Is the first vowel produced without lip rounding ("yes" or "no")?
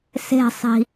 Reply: yes